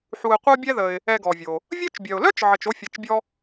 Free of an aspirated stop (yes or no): yes